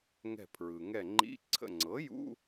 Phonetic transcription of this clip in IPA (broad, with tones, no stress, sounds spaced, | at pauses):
ŋ ɛ̤˧˩ pʰ ɹ ɯ˩ ŋ ɛ˧˩ ŋ͡ǃ ḭ˧˥˧ ǀʰ ə̰˧˩ ŋ͡ǀ ɤ˩˥ j ṵ˧˥˧